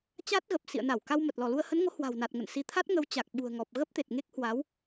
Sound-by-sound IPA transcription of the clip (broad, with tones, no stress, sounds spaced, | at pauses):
t͡ɕ a˦˥ t̚ ɣ ə˨˩ p̚ s ḭ˧˨ ə̯ n a˧˩ w k a˧ w m ə˨˩ t̚ l ɔ˧˩ l u˧ ə̯ h ə˨˦ n ŋ o˨˦ h w a̤˨˩ w n a˨˩ t̚ ŋ ə̰˧˨ n s i˨˦ t̪ʰ a˦˥ t̚ ŋ ə˨˦ w t͡ɕ a˨˩ k̚ ɓ ṳ˨˩ ə̯ ŋ ɔ˨˩ p̚ ɣ ə˦˥ p̚ t̪ e˨˩ t̚ ŋ e˦˥ k̚ h w a˨˦ w